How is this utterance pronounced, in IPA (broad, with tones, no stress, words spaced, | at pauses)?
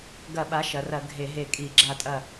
ɡɐ˧˩˧ɓa˩˥ ʃɐ˩˧rɐ˧˩˧ ɡʱe˧˩˧ɦe˧˩kʼi˧˩˧ ɡ͡ǁa˧˩tʼɐ˧˩